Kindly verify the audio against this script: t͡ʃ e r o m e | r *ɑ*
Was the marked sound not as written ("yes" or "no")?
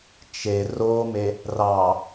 no